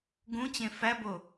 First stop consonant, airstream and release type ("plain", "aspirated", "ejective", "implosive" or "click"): plain